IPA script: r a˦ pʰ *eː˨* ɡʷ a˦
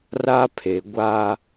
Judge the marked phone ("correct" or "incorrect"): incorrect